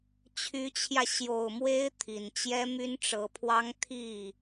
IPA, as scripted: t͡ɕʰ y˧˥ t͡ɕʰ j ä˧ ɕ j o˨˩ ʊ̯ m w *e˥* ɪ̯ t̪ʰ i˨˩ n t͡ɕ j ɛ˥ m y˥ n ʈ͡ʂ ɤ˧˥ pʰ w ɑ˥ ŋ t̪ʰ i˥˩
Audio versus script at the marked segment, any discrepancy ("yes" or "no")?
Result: no